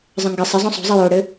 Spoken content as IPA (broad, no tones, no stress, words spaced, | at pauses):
zˤə̃ŋɡɪ sˤɪ zˤõsˤo̤zˤɘ joɽɘ